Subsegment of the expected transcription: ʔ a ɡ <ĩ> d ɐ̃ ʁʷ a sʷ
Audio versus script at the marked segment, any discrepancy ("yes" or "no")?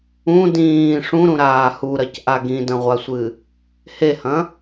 no